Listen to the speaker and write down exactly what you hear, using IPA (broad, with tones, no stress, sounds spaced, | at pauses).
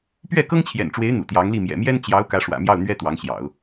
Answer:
p ɥ ɛ˥˩ k ɤ˥ ŋ t͡ɕʰ j ɛ̰˨˩ n ʈ͡ʂ w e˧˥ ɪ̯ n̪ ṵ˨˩ t̪ j ɑ˧˥ ŋ l i˥˩ m j ɛ̰˨˩ m j ɛ˥ n t͡ɕ j ɑ˧˥ ʊ̯ k ä˧˥ ʂ w ä̰˨˩ m j ɑ˥˩ ʊ̯ n̪ ɥ ɛ˥ t̪ w ɑ˧˥ ŋ ɕ j ɑ̰˨˩˦ ʊ̯